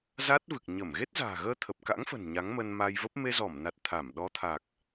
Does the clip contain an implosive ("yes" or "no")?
yes